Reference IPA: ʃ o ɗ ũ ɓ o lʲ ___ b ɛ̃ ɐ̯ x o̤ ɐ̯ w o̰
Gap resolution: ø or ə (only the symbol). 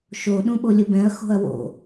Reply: ə